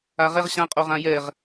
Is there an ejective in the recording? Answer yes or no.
yes